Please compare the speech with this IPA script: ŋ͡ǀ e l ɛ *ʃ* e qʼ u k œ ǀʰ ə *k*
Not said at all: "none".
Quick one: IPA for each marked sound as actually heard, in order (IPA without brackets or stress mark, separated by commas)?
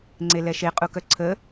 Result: ʃ, none